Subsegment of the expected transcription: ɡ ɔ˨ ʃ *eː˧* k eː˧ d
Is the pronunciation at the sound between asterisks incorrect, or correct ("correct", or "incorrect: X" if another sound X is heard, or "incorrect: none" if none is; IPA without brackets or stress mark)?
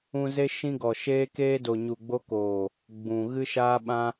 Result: correct